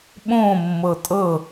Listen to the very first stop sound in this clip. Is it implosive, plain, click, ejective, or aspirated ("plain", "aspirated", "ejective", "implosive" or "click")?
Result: implosive